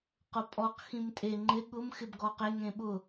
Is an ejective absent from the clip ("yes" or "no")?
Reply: no